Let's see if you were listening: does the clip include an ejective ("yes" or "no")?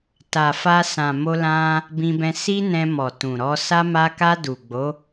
no